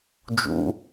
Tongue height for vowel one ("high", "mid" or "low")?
high